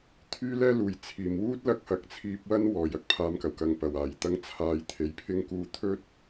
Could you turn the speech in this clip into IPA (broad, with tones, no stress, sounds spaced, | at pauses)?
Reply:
t̪ʰ yː˥ l ɛː˥ l uː˨˩ j t͡sʰ iː˨˩ m w uː˥ t̚ l ɐ˧ k̚ h ɐ˨ k̚ t͡sʰ iː˧ p̚ w ɐ˥ n w ɔː˨˩ j ɐ˥ k̚ pʰ aː˨˧ m k ɐ˨˩ w k ɐ˨ ŋ p ɐ˨˩ w aː˨˩ j t̪ ɐ˧ ŋ t͡sʰ aː˧ j t̪ʰ e˨ j pʰ ɪ˥ ŋ k uː˧ t̪ʰ ɵ˥ t̚